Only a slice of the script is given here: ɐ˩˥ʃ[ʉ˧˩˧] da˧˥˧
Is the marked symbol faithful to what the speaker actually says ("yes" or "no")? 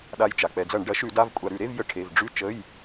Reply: yes